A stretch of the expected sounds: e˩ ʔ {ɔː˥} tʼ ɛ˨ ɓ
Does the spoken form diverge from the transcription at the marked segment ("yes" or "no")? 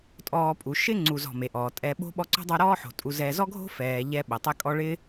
yes